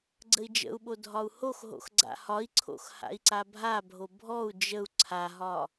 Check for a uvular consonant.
absent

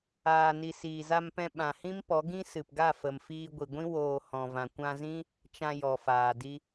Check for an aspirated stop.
absent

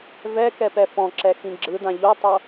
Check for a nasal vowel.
present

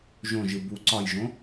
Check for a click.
present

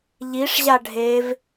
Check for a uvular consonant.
absent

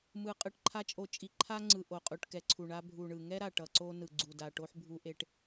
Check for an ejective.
present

